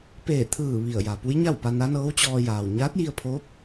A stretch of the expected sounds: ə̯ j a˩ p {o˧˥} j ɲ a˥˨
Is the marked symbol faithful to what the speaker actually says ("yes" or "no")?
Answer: no